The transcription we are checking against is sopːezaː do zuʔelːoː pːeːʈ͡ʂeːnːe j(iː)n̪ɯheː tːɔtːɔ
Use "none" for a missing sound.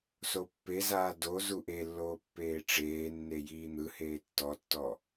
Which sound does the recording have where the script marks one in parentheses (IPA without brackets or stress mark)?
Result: iː